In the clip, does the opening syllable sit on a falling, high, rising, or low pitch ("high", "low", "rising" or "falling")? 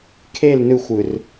falling